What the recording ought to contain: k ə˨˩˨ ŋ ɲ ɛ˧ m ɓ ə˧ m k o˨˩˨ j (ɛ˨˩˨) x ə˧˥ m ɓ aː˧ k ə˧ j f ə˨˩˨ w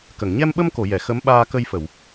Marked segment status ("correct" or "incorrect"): correct